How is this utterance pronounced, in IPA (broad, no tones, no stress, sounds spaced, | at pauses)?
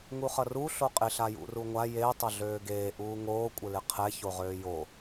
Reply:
ŋ u χ ʌ r u ɬ o qʼ ɪ ɬ a j ṵ r u ŋʷ a j e tˤ ʌ ɮ øː ɡ eː ʔ uː ŋ oː kʷʼ ɪ l ɪ qʰ ɛ ç o ʁ øː j o